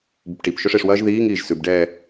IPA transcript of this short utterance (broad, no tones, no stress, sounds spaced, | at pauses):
b ɵ p ʈ i p ʃ ɵ ʂ e ʂ w ɐː ʒ ð iː ŋ iː ʒ s ʉ b ɖ ɛː